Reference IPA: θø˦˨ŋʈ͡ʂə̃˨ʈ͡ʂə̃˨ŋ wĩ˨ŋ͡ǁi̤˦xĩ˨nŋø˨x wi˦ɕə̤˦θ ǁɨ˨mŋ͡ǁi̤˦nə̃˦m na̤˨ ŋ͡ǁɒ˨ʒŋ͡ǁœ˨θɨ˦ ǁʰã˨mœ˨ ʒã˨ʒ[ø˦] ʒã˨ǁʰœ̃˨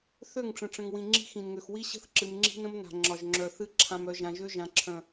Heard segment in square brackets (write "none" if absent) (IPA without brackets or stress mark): ø˦